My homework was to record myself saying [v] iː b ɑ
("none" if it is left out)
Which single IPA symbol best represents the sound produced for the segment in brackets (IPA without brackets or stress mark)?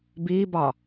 b